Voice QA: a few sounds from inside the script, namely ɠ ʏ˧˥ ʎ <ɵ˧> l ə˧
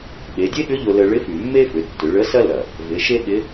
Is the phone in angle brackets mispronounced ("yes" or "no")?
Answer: yes